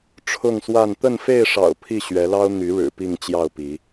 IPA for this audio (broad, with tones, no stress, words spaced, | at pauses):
ʈ͡ʂʰʊ˥˨ŋswa˥˨n t̪ə˥˨nfe˥˨ɪ̯ʂɑ̰˨˩ʊ̯ pʰi˥˨ɕɥɛ˨˦lɑ˦ʊ̯ n̪y˨˦ɻɻ̩˨˩ pi˥˨ŋt͡ɕjɑ˥˨ʊ̯pi˨˦